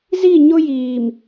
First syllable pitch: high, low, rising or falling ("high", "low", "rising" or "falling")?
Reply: falling